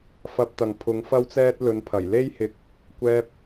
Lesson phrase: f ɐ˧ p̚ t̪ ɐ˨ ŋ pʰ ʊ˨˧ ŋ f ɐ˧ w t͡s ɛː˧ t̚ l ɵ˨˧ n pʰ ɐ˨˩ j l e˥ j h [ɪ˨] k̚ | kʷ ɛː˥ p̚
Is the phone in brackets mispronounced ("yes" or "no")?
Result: yes